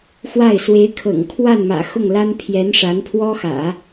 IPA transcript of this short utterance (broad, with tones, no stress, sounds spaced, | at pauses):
x w a˥˩ ɪ̯ s w e˧˥ ɪ̯ kʰ ɤ̰˨˩ ŋ kʰ w a˥˩ n m ä̰˨˩ x ʊ˥˩ ŋ l a˥ n pʰ j ɛ˧˥ n ʂ a˧˥ n pʰ w ɔ˥ x ä̰˨˩˦